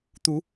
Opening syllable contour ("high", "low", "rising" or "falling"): rising